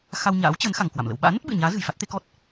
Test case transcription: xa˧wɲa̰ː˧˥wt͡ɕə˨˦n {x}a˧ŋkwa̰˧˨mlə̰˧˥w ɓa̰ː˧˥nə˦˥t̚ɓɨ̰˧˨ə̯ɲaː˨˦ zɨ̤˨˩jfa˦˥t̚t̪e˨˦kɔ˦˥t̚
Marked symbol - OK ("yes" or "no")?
yes